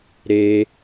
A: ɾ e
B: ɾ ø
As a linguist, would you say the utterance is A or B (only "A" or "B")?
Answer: A